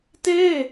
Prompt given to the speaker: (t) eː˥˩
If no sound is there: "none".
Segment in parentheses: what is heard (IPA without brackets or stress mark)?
t